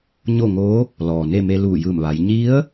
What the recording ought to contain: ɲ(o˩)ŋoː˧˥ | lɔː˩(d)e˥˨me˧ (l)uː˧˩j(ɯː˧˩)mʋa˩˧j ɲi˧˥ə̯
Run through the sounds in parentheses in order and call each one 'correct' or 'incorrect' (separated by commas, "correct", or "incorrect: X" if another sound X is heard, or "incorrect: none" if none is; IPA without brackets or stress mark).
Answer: incorrect: o˥˨, incorrect: n, correct, correct